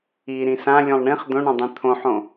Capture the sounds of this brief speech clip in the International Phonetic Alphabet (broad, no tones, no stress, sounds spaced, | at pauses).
i ɾ ĩ s ã lʲ õ lˠ ɳ ĩ χ d̪ õ ɳ õ dˤ ĩ t̪ʰ õ ħ õ